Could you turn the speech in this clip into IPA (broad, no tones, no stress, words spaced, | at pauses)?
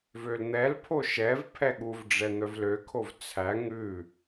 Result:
vøln̪ɛlpʰo ʃɛv pʰɛɠuvɖ͡ʐɛ n̪œvløkʰov t͡sʰæ ŋʉ